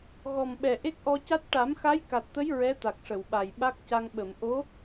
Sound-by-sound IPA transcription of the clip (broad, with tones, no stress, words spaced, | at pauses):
ɣɔ˨˩mɓɛ˨˩ ʔe˦˥k̚ʔɔ˧ca˦˥t̚ ʈa˨˩˦mxa˧˥jka˨˩t̚t̪ə˧˥j ɹɛ˧˥t̪a˨˩k̚ʂə˨˩˨wɓa˨˩j ɓa˦˥k̚ca˧ŋ ɓə˨˩˨m ʔo˧˥